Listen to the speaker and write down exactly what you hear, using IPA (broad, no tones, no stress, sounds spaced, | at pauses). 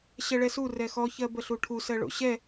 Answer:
ɕ ɛ ɭ ɛ s u r ɛ x ɔ ç ɜ b ə ɬ u ʈʰ u s ɜ ɭ o̰ ɕ ɛ